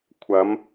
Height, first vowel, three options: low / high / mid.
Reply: low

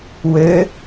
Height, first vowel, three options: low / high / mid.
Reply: mid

